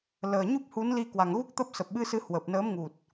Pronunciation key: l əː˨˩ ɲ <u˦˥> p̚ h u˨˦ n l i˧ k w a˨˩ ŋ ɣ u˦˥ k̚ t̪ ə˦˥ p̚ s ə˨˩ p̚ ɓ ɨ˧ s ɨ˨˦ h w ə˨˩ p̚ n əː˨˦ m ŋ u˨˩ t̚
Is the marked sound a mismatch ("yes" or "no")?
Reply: no